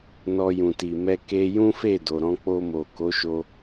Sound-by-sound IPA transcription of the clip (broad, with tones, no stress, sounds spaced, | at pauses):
n ɔ˧ j ũ˨ t i˨ m ɛ˧ k e˧ j ũ˦ f e˦˨ d o˨ ɾ ɔ̃˧ k͡p o˧ m o˨ k o˨˦ ʃ o˧